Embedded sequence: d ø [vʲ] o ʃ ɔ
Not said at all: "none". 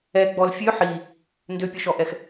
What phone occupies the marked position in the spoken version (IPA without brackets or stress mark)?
pʲ